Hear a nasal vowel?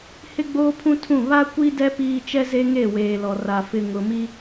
yes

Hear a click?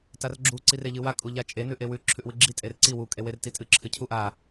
yes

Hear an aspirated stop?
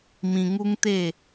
no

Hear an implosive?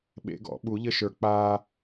yes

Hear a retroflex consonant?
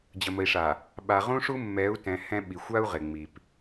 yes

